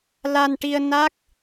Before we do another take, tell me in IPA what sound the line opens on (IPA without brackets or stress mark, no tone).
l